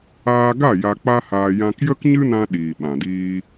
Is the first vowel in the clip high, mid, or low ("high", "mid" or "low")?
low